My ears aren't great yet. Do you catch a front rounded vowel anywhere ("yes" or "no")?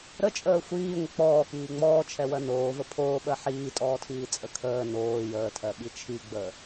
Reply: no